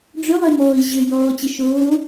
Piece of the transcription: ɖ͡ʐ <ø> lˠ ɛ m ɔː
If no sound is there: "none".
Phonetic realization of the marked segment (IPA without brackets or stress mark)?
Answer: ø